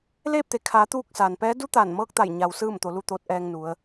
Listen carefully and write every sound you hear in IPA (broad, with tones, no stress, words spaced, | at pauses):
leː˥˨p̚t̪e˩kʰaː˩˧ t̪uː˧k̚ saː˩npɛː˧˥ du˧˥ t̪aː˧˩nmɤː˧˥k̚t̪a˧˩j ɲa˩w sɯː˥˨mt̪o˩˧ lu˧t̪oː˧˥t̚ʔɛː˧ŋnu˩˧ə̯